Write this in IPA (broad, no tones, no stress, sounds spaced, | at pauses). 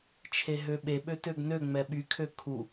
t͡ʃʰ e ɦ ø ɓ e ɓ ø t ø ɡ n ø ŋ͡m ɛ ɓ y kʰ ø kʰ u